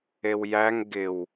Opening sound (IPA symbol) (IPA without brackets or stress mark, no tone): e